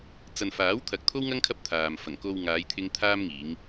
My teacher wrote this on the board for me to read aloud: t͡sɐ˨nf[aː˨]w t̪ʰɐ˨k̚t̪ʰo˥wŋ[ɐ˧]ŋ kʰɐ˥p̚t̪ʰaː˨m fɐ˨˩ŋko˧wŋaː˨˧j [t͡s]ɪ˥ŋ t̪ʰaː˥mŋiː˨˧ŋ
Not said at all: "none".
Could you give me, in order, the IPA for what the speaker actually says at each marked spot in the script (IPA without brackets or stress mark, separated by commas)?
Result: aː˨˥, ɐ˥, t̪ʰ